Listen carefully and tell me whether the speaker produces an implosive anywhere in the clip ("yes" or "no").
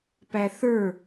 no